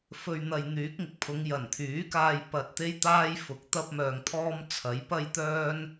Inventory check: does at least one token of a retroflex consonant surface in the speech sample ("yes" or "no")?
no